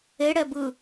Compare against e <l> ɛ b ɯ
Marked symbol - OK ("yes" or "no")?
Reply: no